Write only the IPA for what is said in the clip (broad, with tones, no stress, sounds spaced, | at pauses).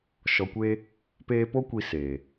ʃ ɔ˨ kʷ eː˧ | p eː˧ p o˦ kʷ i˧ s eː˨